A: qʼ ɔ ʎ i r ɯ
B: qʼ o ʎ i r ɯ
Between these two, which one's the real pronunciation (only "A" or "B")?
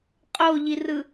B